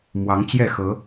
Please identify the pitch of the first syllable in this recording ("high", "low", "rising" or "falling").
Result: rising